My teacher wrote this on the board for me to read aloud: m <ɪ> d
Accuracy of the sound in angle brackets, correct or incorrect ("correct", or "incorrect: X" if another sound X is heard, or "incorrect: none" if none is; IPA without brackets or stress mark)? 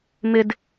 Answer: correct